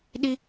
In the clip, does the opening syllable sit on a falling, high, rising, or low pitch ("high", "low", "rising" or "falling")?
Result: high